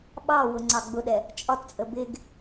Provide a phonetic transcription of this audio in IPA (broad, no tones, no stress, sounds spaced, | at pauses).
ɓ ɑ w ʊ ŋ͡ǀ ɑ ɡ͡b ʊ ɗ ɛ | t͡ʃʼ ɒ t t͡sʼ ə b ɪ ɡ